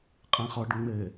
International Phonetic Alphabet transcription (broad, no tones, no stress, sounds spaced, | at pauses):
qʼ ẽ χ ɔ ɖ ŋ͡m ɘ